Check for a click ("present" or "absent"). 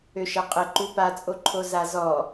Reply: present